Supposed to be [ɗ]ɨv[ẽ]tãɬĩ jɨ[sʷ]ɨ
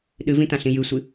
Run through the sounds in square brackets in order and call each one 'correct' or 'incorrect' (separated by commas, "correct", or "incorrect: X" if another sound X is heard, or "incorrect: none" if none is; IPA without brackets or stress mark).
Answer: correct, incorrect: ĩ, correct